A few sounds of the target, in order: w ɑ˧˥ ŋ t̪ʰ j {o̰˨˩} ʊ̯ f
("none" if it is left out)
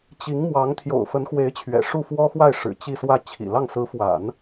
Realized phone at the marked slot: o̰˨˩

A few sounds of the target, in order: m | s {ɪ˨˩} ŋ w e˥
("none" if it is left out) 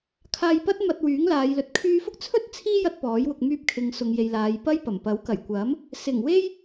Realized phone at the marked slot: ɪ˨˩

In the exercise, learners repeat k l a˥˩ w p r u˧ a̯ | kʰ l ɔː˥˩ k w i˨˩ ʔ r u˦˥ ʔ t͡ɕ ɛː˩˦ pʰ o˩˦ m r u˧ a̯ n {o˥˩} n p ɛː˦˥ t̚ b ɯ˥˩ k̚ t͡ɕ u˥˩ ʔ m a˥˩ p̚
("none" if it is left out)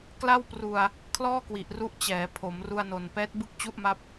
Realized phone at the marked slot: o˨˩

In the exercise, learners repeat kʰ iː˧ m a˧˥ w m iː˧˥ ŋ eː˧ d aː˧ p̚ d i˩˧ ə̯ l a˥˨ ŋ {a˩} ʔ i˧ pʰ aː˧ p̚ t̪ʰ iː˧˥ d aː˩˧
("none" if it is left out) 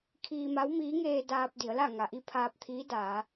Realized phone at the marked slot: a˩˧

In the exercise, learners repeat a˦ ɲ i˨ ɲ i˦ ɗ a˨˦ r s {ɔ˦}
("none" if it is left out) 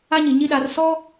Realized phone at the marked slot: ɔ˦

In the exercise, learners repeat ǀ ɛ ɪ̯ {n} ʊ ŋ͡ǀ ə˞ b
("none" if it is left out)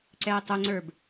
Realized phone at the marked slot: tˤ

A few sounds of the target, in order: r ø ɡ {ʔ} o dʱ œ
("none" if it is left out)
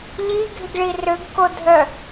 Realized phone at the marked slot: k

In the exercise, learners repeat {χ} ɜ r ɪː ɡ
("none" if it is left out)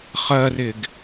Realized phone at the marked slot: χ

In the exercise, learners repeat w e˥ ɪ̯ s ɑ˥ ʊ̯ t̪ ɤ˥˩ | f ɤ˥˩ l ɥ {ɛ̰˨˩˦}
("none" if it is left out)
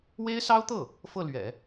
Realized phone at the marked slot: ɛ̰˨˩˦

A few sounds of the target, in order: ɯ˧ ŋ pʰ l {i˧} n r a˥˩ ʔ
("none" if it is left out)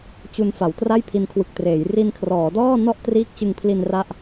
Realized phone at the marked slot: i˧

